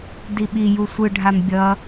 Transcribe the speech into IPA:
diɓiju sʷɯɖʱam bʲʌ

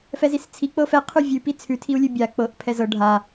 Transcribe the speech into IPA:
fɛzist͡sʰi k͡pɤfɛ qʰʉvʲʉpi t͡sʰʉtʰiu̯lʲʉ bʲa k͡pɤʔ pʰɛzɤ ɖʱa

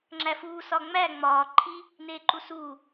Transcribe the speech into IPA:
ŋ͡ǁæfuː sɒŋ͡mæ ŋ͡mɒː ǃʰi | neːǃusuː

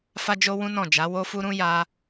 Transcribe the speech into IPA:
fa˦d͡ʒo˦wũ˦ nɔ̃˦˨d͡ʒa˨˦ wo˦fu˦ɾũ˦ ja˦

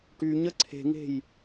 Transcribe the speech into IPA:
ʈyɲə ǀʰe̤ŋe̤j

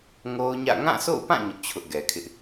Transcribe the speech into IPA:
ŋo˦ʊ̯ɲä̰˦˨ ŋã˦˨so̰˦˨ʊ̯pã˦˨ ɲʊ˦ʔt͡ɕʰʊ˦ʔɡɛ˨kʰɪ˦ʔ

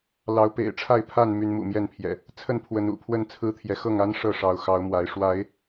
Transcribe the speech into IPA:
lɑ˨˦ʊ̯pḛ˨˩ɪ̯ʈ͡ʂʰa˥˨ɪ̯pʰa˥˨n my˨˦nmṵ˨˩mjɛ˥˨npʰjɛ̰˨˩ | t͡sʰə˥˨npʰwə˨˦n ṵ˨˩pʰwə˥˨n t͡sʰɹ̩˦t̪ʰjɛ˨˦ xɤ˥˨ŋa˦n ʂɤ˥˨ʂɑ˨˦ʊ̯ xɑ˨˦ʊ̯mwa˨˦ɪ̯ ʂwa˨˦ɪ̯

